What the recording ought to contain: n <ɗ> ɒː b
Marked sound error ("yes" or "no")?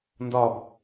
yes